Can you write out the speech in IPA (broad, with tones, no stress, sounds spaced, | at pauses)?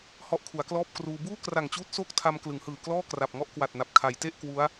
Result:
h ɔ˦˥ ʔ kʰ u˩˦ a̯ k l ɔː˥˩ p̚ k r uː˧ b uː˥˩ k r a˨˩ ŋ t͡ɕ uː˦˥ t̚ s oː˥˩ k̚ tʰ a˧ m k l ɯ˩˦ ŋ h ɯː˨˩ k l ɔː˥˩ k r a˨˩ p̚ ŋ ɔ˥˩ ʔ k w a˨˩ t̚ n a˨˩ p̚ kʰ a˩˦ j t e˥˩ ʔ k w u˦˥ a̯